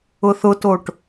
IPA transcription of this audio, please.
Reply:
ʊ θ ʊ t o ʈ

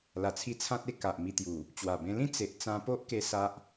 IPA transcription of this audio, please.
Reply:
l a˨˩ t͡sʰ i˧ t͡sʰ ã˦ t̚ e˦ k a˨ ʔ m i˧ t̪ j u˨˩ | t͡ɕ w a˨˩ b ẽ˧ l ĩ˦ t͡s e˨ ʔ t͡s ã˧ p o˦ ʔ k e˧ s a˦ ʔ

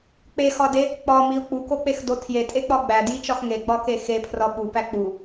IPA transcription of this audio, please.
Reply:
k͡p e x ɒ d e | k͡p ɒ m i ʊ̯ k͡p u k o k͡p e x d o tʰ j e tʼ e k͡p ɒ ɡ͡b æ d j i t͡ʃ ɒ x ŋ e ɡ͡b ɒ k e x e pʰ r ɒ ɓ u p æ k͡p u

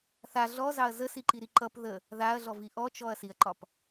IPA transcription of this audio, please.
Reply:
θ a ɮ ɔ z ɑ ɐ̯ z ə s i ǃ i ɾ i ǃ ʌ p ð ə | ð a ɐ̯ ɮ ɔ v i ʔ ɔ t͡ʃ ɔ ɐ̯ s i ɐ̯ ǃ ɒ p

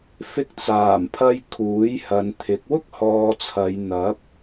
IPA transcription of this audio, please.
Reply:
f ɪ˧ k̚ t͡s aː˨˩ m pʰ ɐ˧ j kʰ uː˨˥ j h ɐ˨˧ n t̪ʰ ɪ˨˥ k̚ w ʊ˥ k̚ h ɔː˧ t͡sʰ ɐ˨˧ j n̪ ɐ˨˥ p̚

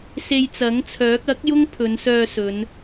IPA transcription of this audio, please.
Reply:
s e˧ j t͡s ɐ˨˥ ŋ t͡sʰ œː˨˥ k̚ ɐ˨˥ k̚ j ʊ˥ ŋ pʰ ɵ˨˧ n s œː˧ s ɵ˨˧ n

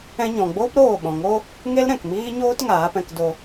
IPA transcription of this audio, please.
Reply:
ɛ̃˧ ɲ ɔ̃˨ ɡ͡b oː˦ p ɾ oː˦˨ ɓ ɔ̃˨ ŋ o˦ | ŋ e˦ l ɾ ɛ̃˨ k m iː˦ ɲ oː˦ t ŋ aː˨˦ p ɛ̃˧ k d o˧

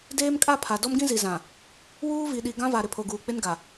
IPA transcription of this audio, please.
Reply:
d eː˦ m kʼ a˦ pʰ a˨ d ɔ˦ m ɡ ĩ˦ z i˨ z ã˨ | w uː˦ v i˨ ɗ i˨ ɡ ã˦ v a˨ ɾ ɪ˨ pʰ o˨ ɡ uː˨ k͡p ɪ˦ n ɡ a˨

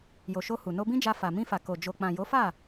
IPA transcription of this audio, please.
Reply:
j o˨ ʃ o˧ h u˨ n o˧ b ĩ˦ d͡ʒ a˧ f a˨ m ĩ˧ f a˨ k o˨ d͡ʒ o˨ k͡p ã˨ j o˨˦ f a˦˨

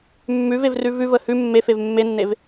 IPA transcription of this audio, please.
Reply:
mː ʉ v e v r ʉ v ʉ v ə h ʉ mː e f e v mː e nː e v

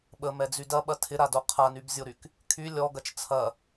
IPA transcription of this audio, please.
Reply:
ɓ ə m ɛ d͡z y d ɐ ɓ ɐ tʰ ɪ ɾ a d o qʰ a n y b zʲ o ɾ y k | kʰ y lʲ ɔ ɡ ɐ t͡ʃ t͡sʰ ɐ

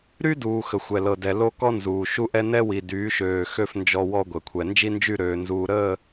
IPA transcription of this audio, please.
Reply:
ɾ y˦ d uː˨ x ə˨ xʷ ɛ˨ l ɤ˨ d ɛ˨ l o˦ k ɔ˦ n z uː˨ ʃ u˦ ʔ ɛ˦ n ɛ˦ w i˨ d yː˨˦ ʃ øː˨ x ø˦˨ f n d͡ʒ ɔ˦ w ɔ˦ ɡʷ ɛ˨ kʷʰ ɛ˨ n d͡ʒ i˦ n d͡ʒ y˦˨ ɾ øː˨ n z uː˨ ɾ əː˦˨

